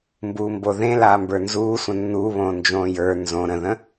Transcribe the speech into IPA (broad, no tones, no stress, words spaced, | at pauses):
mbuːmboðẽ laːmbə˞nzuː sʷə̃nːuːβõː nd͡ʒõːjə˞ nzõ ɾə̃ðə̃